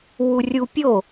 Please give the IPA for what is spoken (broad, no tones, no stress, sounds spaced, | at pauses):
w u rʲ u pʲ o